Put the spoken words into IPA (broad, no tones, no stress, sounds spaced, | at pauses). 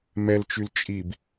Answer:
m ɛ l t͡ʃ y l t͡ʃʼ i b